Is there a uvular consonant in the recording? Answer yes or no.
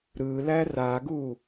no